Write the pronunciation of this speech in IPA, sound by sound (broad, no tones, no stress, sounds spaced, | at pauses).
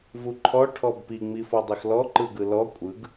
v u ǃʰ ɔ ʈʰ ɔ b p i ŋ͡m i f ɔ dˤ i x l ɔ ǃ ɯ ɡ ɯ l ɔ kʷʼ ɯ ɡ